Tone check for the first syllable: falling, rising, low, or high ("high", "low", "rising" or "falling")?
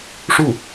falling